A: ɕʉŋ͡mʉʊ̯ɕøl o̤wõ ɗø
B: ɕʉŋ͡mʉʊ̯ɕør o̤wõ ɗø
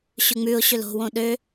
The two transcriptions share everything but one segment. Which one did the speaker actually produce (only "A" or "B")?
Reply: A